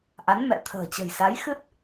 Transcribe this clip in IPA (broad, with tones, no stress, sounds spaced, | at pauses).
ʔ a˨˦ n m ɛ̰˧˨ t̪ʰ ə̤ː˨˩ t͡ɕ ə̤˨˩ j s a˨˦ j x ɨ˦˥ t̚